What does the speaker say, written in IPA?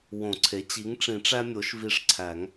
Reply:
w õ˨˩˦ ǀʰ e˩˥ t͡ɕ i˩˥ ŋ ʈ͡ʂ ĩ˨˩˦ ʈ͡ʂ æ˦ mʲ o˩˥ ʃ v i˧˩ ʂ ǀʰ æ˨˩˦ ŋ

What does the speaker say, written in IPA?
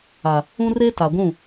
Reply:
a˨ | ũ˦ r e˦ t a˨ ɡʷ ũ˦˨

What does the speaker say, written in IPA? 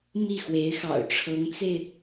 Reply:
m i˥˩ x w e˧˥ ɪ̯ x ɑ̰˨˩ ʊ̯ ʈ͡ʂʰ ɤ˧˥ ŋ t͡s e˧ ɪ̯

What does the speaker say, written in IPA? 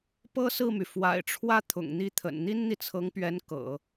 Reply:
p ɤ˥ s ɹ̩˥˩ m y˩ f w a̰˨˩ ɪ̯ ʈ͡ʂʰ w ä˥˩ t̪ʰ ʊ̰˨˩ ŋ n̪ i˥˩ t̪ʰ ə̰˨˩ n n̪ i˥ n n̪ i˨ t͡sʰ ɤ˧˥ ŋ p ɥ ɛ˧˥ n k ɤ̰˨˩˦

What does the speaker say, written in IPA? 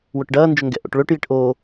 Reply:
w ʊ ʈ ɖ ɐː n d͡ʒ ʊ ŋ ɡ ɛ̰ ʔ o̰ ʈ ɭ ø ʈ j i ʈ ʔ oː

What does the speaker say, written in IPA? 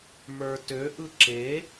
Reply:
m ə˞ t ø ʔ ɯ ǁ e

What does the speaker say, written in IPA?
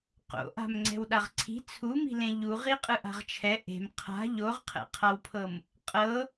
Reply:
q o̰ ʔ a̤ m ŋ͡ǀ ɛ̤ w ɗ a ʁ ǀʰ i̤ t͡sʰ u m i̤ l ẽ ʎ u ʁ i qʼ ɯ ʔ a̤ ʁ t͡ʃʰ ɛ ʔ e̤ m qʰ a̤ ʎ o ʁ qʰ ɛ̰ qʰ a w pʰ ɤ m | qʼ ɤ

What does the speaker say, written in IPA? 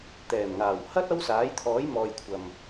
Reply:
t̪ ɛː˨˩ m ŋ aː˨˩ w h ɐ˥ t̚ ɐ˥ w s aː˨˥ j t̪ʰ ɔː˨˥ j m ɔː˨ j kʷʰ ɐ˨ m

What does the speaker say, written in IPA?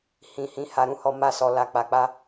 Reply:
h ĩ˨ h ĩ˨˦ h a˧ ɾ ũ˦ h ɔ˧ m a˧ s ɔ˨ l a˨ k͡p a˨ k͡p a˧

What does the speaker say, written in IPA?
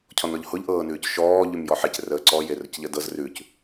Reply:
cʰ ɔ n ɔ ʎ h ʊ ʎ ʔ ɤː n ʉː c ʃ ɔː ʎ ʉ m j ɔ ħ e c r əː ǀ ɔ j e r ə c ʎ ə d ɤ z r ʉ c

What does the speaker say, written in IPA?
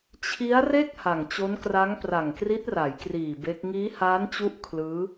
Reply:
t͡ɕʰ i˦˥ a̯ r e˥˩ k̚ h a˨˩ ŋ t͡ɕ o˦˥ n k r a˦˥ ŋ p r a˨˩ ŋ k r i˦˥ t̚ r a˩˦ j k r iː˨˩ b e˦˥ k̚ ŋ iː˦˥ h aː˦˥ n t͡ɕ u˦˥ ʔ kʰ l ɯː˦˥

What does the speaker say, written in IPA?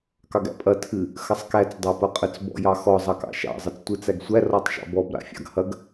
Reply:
k ɑ ɡ æ̰ pʼ ɐ tʰ ɨ | x ɐ sˤ k æ t͡s dˤ ɑ p ɐ qʼ ə t͡s b ɔ̰ j ɑ x ɔ zˤ ɑ k ɑ̰ ʃ ɑ̰ zˤ ɐ t͡s tʷ ɨ t͡s æ ɡ sʷ æ r ɔ tˤ ʃ ɑ̰ b ɔ b ɾ a̰ fʲ ɑ̰ ɡ h ɐ ɡ

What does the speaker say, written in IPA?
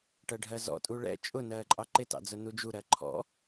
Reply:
ʈ ɜ ɖʱ ɜ z ɔ̰ tʼ u ɭ ɛ̰ t͡ʃʼ ʊ n ɜː ǃʼ ɑ ǃ ɪ t ɑ̰ d͡z ʊ n u d͡ʒ u ɾ ɜ ǃʰ ɔ̰

